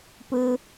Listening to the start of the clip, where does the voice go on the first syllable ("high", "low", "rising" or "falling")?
high